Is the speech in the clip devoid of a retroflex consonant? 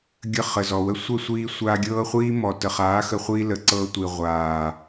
yes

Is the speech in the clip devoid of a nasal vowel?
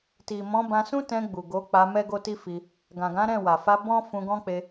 no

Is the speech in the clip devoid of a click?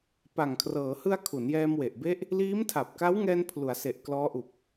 yes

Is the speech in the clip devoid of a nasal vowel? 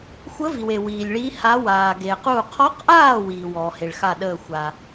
yes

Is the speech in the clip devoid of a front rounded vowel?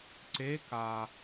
yes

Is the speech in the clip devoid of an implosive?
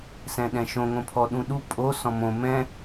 no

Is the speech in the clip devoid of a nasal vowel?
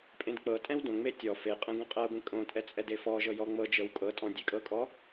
no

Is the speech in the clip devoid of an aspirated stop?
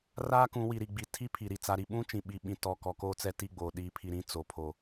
no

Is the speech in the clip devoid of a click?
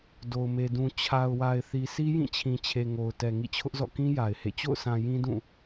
yes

